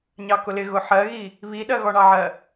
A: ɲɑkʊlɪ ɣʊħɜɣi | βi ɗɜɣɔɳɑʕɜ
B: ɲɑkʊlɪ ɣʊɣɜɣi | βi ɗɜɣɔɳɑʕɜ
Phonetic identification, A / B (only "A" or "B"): A